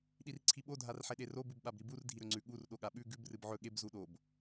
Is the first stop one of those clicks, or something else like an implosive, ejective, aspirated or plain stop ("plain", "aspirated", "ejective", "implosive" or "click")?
implosive